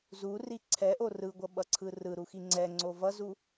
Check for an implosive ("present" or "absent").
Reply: present